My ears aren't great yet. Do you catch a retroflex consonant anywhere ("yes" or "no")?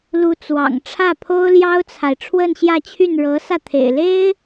yes